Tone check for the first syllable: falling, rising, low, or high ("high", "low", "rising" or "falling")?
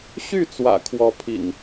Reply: falling